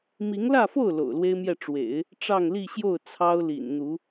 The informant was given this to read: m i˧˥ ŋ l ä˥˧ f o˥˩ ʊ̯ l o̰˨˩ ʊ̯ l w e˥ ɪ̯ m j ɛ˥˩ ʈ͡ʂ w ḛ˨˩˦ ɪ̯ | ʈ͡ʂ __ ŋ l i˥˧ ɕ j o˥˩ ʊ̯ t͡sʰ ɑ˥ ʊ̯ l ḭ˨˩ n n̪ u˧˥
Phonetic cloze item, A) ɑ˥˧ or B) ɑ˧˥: A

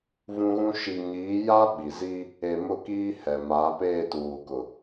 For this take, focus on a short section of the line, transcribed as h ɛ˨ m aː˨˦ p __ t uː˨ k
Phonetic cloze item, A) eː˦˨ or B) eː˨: A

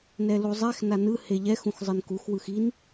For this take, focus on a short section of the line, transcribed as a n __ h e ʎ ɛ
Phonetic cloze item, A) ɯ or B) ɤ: A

